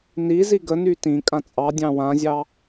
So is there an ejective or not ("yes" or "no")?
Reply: yes